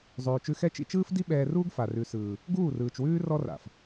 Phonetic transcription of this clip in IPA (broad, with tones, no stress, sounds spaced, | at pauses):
zˤ ʉː˨ t͡ʃ ʉ˧ x ɛ˦ t͡ʃ ḭ˧ t͡ʃ ɯː˦ f d i˦ ɓ ɛː˧ r uː˦ ɡ f a˨ r ʉ˨ s ɯː˨ | ɡ uː˦˨ r ɯː˨ t͡ʃ w ʉː˦ r ɔ˦ r a̰˨ f